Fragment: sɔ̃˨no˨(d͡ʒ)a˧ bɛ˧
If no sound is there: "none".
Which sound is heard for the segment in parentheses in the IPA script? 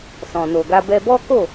ɡ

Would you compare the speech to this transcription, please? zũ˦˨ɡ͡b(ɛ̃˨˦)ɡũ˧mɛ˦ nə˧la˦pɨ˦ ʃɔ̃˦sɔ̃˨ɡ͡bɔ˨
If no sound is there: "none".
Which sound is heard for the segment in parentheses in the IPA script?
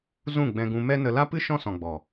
ɛ̃˧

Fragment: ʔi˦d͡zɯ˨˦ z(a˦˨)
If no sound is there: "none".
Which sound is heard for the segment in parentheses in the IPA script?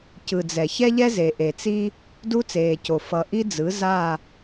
a˦˨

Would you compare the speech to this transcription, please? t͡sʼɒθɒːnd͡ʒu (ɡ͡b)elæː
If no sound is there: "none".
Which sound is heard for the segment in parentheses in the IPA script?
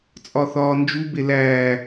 b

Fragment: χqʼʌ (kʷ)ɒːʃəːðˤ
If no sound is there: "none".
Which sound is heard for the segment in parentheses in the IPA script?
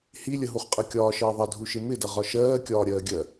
kʲ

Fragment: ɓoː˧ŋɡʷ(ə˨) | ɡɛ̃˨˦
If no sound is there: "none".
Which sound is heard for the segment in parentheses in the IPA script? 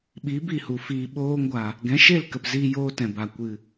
a˨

